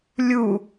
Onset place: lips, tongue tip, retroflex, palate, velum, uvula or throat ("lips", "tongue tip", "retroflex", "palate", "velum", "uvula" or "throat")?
tongue tip